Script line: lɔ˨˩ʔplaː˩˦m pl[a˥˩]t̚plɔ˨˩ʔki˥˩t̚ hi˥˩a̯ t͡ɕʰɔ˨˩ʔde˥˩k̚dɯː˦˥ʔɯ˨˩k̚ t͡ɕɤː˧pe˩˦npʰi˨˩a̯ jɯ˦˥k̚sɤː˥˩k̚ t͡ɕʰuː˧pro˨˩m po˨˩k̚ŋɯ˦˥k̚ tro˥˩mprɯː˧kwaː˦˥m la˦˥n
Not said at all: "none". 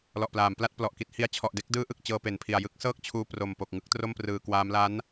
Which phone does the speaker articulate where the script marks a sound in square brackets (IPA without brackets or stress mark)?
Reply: a˥˩